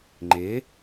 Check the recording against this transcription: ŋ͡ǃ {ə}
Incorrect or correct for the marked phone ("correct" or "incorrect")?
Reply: incorrect